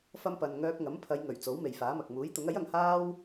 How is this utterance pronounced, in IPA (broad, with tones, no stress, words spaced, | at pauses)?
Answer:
fɐ˥mpɐ˧n ŋœː˧k̚ŋɐ˨˥mpʰɐ˨˧j ŋɵ˨˩ɥt͡so˨˥w me˨jfaː˨˥mɐ˨k̚ muː˨˥jt̪ʊ˨˥ŋ ɐ˨˥jɐ˨ŋ haː˥w